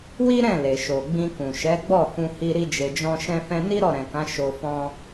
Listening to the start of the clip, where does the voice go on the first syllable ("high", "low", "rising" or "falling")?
high